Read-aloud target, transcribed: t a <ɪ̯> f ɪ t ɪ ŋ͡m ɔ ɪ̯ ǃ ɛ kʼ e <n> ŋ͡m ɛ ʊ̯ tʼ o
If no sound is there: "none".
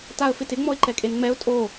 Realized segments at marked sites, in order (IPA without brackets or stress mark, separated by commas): ə̯, n